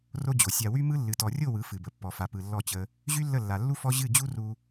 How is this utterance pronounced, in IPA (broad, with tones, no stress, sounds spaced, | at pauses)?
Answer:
r o˦ d͡ʑ o˨ sʲ a˧ w y˦ m ɯ˦ lː ɨ˨ t ɔ˨ rʲ o˦˨ w ɯ˨˦ f ɨ˨ b ə˨ pː ɔ˨ f a˨ p ɯ˨ lː ɔ˦˨ t͡ɕ ə˧ | ʑ y˦ lː ə˦˨ lː a˨ lː u˦ f ɔ˦ ʑ ɨ˦˨ d͡ʑ u˦ r u˧